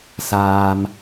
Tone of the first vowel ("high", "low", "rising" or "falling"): low